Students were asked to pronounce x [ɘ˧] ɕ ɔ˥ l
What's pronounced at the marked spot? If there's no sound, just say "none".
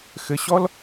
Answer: ɘ˧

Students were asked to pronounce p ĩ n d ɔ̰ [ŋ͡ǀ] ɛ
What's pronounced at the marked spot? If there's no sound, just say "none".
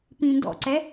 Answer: ǀ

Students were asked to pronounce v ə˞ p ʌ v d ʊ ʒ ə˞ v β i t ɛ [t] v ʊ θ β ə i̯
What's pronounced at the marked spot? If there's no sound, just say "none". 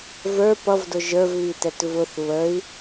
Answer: t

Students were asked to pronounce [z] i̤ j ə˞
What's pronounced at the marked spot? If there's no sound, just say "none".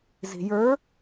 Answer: z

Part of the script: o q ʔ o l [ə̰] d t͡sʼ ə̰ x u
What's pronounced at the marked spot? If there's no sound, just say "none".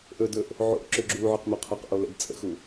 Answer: ə̰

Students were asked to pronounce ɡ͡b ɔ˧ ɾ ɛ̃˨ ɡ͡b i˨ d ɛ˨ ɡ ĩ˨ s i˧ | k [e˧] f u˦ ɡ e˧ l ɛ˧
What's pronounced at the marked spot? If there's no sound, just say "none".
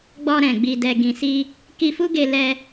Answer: i˧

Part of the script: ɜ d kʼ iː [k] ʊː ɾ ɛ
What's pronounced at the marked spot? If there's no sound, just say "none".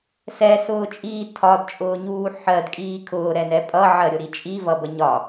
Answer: kʰ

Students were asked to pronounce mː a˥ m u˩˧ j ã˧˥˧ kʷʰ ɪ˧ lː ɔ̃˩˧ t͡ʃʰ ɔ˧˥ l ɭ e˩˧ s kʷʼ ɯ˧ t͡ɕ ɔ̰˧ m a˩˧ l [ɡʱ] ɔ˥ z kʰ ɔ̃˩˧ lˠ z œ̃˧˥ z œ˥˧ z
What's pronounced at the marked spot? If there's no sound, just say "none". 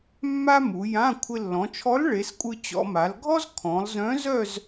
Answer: ɡʱ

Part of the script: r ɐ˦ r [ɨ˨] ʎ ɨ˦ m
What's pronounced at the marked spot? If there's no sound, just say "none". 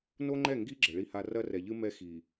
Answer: ɛ˨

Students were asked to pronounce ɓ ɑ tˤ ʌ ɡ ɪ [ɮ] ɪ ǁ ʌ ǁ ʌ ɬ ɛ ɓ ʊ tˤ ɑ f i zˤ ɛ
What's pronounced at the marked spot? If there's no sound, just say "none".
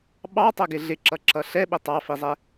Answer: ɮ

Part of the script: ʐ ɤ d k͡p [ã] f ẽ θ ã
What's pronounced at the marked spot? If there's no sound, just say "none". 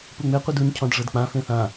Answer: ã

